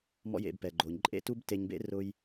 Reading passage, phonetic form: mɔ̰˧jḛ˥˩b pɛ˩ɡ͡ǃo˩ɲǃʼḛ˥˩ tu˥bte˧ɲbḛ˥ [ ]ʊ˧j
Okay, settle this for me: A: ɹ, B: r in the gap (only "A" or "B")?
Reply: B